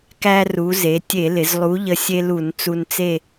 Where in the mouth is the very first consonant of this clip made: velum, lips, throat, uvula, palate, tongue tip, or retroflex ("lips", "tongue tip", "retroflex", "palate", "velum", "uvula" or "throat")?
velum